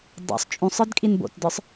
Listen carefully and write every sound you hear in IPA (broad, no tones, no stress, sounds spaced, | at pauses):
dˤ o̰ sˤ t͡ʃʼ ũ sˤ ə˞ d kʼ i n b o̰ t d ə˞ sˤ